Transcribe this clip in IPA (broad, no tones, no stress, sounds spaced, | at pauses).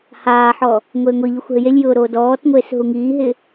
h aː ħ ɔ | ŋʷ eː ŋʷ i ʎ ʊ xʷ ɦ ɪ j e lʲ j ʊː ɾ oː d ɔː t ŋʷ eː s ɦ u ŋ iː ɦ ɪ